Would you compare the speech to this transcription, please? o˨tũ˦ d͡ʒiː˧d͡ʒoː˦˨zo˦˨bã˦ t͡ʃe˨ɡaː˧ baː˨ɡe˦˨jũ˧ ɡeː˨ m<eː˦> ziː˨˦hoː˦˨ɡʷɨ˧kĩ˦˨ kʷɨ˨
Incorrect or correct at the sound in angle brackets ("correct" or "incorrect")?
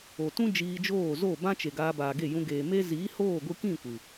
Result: incorrect